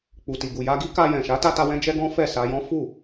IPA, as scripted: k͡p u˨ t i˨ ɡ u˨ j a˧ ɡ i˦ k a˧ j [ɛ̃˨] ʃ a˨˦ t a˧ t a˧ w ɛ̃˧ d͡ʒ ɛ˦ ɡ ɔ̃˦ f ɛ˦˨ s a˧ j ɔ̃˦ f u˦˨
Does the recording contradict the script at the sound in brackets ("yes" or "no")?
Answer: no